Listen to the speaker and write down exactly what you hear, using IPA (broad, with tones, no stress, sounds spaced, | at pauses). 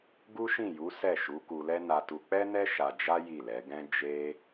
ɡ u˦ ʃ ĩ˦˨ j u˨˦ s ɛ˦˨ ʃ u˨˦ k u˧ l ɛ˦ n a˧ t u˧ k͡p ɛ˦ n ɛ˦ ʃ a˧ d͡ʒ a˦ j i˦˨ l ɛ˨˦ ɡ ɛ̃˦ d͡ʒ e˦